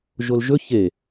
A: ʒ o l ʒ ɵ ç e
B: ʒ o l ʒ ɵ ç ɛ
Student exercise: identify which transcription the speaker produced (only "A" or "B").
A